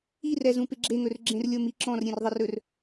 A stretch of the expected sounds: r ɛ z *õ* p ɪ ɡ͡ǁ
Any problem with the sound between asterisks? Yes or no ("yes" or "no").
yes